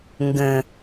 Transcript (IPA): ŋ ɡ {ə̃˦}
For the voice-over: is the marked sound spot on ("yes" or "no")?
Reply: no